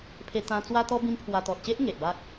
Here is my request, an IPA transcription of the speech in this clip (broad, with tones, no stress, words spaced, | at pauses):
pʰe˦t̪ã˦ t͡swa˦t̪ɔ˦ bĩ˦mpʰwa˧ t̪ɔ˨t̚ɕe˦ʔ ŋe˨ʔba˦k̚